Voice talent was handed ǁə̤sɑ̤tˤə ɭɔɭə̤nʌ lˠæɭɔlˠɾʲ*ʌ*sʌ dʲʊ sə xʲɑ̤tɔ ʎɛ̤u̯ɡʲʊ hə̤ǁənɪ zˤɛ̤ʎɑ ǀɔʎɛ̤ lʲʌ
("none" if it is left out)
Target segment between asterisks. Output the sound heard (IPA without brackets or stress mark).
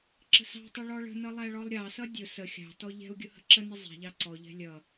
ɑ